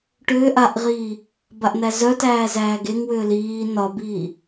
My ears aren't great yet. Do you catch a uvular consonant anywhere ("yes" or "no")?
yes